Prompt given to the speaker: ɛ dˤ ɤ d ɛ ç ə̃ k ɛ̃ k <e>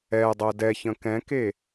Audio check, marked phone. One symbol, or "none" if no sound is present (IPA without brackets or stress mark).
e